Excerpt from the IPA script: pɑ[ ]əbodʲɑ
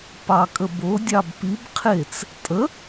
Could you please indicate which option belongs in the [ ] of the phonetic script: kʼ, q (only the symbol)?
kʼ